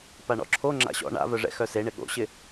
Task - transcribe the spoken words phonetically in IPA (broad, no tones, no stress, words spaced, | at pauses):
paɳɔ̰ǁʰo ŋ͡ǁa̰ɕɔ̰ ɳa̰vœʐɛ̰ xœseɳɪ ɠo̰ɕɪ